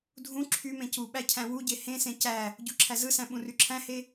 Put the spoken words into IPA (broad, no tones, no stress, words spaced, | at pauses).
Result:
dʱũ ǁʰymẽ cuɓæ cʰæ̃wuɟe hẽsẽ cæ | ɟuǁʰæzɯsæ̃ ɓũryǁʰæ̃he